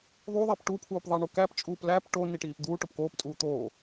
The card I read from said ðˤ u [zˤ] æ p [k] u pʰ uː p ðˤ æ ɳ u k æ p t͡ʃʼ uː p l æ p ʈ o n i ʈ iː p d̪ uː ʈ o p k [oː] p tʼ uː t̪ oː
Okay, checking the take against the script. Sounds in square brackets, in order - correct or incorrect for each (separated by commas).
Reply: incorrect, incorrect, correct